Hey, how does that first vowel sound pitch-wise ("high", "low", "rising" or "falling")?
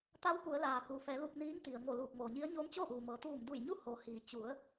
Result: rising